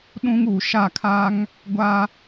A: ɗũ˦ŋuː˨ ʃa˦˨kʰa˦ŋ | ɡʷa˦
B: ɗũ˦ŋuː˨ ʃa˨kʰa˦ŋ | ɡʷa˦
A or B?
A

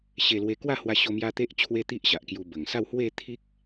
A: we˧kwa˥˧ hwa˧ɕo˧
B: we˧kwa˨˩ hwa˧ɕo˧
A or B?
A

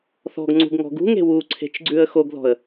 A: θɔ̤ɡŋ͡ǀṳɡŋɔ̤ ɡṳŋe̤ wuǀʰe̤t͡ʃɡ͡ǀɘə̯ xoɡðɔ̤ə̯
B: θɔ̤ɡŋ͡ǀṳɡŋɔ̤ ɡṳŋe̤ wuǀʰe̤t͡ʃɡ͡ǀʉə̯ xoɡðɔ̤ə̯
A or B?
B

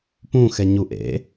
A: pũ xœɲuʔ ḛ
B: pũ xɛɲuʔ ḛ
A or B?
B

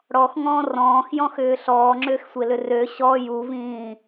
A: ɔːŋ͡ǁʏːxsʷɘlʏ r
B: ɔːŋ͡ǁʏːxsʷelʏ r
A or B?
B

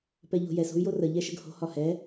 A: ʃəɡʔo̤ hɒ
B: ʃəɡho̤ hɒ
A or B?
B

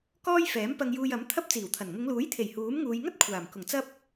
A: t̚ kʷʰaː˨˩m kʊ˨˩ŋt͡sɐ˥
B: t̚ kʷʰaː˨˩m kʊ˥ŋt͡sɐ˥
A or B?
A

